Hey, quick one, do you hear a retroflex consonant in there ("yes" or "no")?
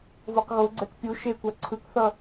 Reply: no